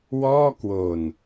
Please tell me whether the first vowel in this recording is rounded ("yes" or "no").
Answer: yes